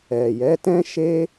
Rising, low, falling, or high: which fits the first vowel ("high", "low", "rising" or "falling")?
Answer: low